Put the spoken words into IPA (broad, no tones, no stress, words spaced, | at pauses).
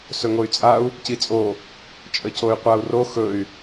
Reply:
sɵŋoy̯t͡sʼau̯ | cit͡sʼo | t͡ʃʼəcoy̯qʷau̯ro xɵy̯